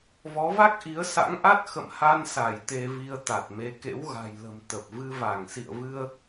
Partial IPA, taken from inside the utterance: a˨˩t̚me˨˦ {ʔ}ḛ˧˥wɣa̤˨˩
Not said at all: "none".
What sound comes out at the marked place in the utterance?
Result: k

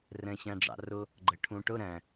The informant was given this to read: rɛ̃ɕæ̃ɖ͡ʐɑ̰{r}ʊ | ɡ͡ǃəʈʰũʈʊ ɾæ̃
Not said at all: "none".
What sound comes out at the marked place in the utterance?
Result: r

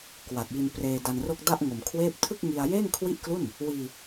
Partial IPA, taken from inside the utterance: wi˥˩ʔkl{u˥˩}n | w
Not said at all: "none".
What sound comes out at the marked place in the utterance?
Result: u˥˩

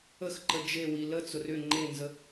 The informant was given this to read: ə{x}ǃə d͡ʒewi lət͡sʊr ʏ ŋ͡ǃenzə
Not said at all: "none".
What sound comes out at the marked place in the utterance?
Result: x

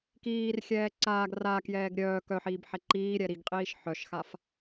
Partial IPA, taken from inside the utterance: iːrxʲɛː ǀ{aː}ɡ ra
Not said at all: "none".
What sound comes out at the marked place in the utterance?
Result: aː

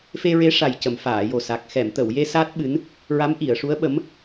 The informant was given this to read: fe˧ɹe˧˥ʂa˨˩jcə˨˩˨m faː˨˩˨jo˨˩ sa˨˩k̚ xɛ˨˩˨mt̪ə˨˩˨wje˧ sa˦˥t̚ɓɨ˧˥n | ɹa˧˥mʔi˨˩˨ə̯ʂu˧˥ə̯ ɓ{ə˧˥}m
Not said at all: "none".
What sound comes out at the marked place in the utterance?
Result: ə˧˥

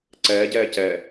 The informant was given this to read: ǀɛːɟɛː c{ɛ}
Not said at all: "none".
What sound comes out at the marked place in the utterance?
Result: ɛ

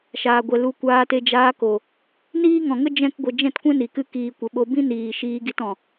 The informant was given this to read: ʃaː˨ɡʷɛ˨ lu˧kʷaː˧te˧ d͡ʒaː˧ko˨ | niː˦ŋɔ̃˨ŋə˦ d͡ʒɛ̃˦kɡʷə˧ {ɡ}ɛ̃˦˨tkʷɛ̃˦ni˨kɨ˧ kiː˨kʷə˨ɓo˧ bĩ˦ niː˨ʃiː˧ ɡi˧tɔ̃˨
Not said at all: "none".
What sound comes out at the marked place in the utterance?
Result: d͡ʒ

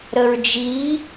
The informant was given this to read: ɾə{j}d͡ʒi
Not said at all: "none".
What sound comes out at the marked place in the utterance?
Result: ɹ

